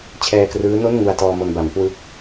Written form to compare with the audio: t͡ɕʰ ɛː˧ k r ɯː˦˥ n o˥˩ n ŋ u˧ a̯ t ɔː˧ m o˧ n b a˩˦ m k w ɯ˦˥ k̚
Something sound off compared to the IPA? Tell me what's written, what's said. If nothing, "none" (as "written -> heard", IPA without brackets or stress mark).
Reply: none